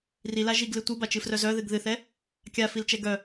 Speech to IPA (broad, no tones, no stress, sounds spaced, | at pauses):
r i l a ʒ i ɡ l ɨ tʷ ɨ b a t͡ʃ ɨ f r œ z œ ð ɨ ɡ ð ɨ θ ɛ | kʲ a f i l t͡ʃ ɛ ɡ œ